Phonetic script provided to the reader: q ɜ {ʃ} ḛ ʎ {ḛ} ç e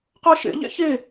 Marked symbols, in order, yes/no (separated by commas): yes, yes